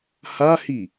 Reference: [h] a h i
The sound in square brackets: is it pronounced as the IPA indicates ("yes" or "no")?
yes